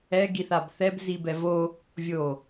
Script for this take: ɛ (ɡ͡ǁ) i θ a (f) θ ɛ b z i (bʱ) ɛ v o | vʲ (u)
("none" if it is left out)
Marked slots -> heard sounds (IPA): ɡ, b, b, o

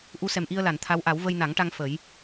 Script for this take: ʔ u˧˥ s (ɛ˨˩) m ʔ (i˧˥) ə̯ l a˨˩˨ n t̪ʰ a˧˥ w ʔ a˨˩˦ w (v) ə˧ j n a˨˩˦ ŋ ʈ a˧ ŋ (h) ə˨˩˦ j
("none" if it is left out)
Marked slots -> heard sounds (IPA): ɛ˨˩, i˧, v, f

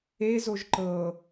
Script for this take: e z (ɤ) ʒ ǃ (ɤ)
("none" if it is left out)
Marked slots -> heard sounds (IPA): o, ɤ

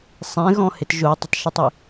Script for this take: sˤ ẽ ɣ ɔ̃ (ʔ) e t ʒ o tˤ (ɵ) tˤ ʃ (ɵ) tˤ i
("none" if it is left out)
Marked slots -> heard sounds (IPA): h, ə, ɵ

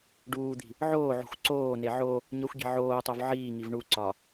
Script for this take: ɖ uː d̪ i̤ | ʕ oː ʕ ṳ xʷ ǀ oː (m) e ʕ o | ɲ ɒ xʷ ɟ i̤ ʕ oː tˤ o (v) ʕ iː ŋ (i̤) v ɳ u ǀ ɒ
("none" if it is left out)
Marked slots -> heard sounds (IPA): n, v, i

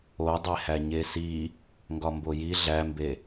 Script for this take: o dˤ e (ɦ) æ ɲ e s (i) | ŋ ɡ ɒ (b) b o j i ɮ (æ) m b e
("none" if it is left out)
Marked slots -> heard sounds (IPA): h, i, m, æ

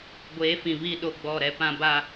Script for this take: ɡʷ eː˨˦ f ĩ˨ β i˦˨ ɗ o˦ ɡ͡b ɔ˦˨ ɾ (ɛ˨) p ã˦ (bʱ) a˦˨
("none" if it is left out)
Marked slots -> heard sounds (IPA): ɛ˦, b

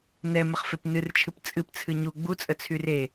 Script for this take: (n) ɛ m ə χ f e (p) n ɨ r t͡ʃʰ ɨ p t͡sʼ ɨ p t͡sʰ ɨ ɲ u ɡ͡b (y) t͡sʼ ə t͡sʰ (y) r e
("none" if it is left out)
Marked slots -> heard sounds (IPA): n, p, u, y

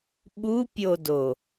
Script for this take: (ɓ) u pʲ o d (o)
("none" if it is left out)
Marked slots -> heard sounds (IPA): ɓ, o

